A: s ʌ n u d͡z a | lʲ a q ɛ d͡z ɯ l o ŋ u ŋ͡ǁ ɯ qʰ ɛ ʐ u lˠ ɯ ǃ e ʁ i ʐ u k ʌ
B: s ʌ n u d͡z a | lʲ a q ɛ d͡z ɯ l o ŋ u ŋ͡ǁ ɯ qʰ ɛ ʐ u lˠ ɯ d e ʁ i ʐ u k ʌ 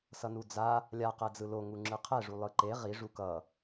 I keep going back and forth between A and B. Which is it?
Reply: A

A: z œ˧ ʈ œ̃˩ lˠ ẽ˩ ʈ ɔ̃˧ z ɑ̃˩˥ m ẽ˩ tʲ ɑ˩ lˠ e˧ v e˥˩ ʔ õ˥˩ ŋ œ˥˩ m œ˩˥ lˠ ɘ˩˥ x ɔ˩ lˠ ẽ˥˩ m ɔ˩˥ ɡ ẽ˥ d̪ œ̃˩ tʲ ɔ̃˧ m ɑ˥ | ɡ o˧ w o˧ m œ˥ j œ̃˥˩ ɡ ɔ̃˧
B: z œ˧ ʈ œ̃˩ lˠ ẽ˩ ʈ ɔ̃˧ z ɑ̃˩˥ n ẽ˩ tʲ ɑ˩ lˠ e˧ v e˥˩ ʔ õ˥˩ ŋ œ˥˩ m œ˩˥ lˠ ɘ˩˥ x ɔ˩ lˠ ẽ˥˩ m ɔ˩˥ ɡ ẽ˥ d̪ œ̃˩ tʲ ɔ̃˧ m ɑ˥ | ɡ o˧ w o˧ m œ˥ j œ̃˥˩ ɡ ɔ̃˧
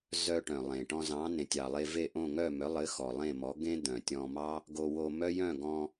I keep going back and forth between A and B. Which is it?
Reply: B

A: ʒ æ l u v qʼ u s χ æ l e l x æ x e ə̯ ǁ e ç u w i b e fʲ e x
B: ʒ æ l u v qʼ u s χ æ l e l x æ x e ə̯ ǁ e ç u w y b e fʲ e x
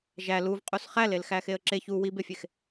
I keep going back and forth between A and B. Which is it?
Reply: A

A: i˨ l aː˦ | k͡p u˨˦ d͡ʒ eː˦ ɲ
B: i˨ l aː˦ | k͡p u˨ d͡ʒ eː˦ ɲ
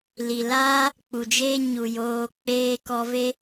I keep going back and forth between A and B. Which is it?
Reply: B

